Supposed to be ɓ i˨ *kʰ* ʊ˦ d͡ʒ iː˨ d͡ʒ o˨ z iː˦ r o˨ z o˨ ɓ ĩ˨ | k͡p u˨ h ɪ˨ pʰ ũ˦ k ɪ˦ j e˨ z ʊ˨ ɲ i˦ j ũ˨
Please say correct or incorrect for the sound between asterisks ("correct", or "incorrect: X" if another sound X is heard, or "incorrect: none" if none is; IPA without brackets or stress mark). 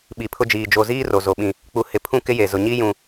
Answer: incorrect: pʰ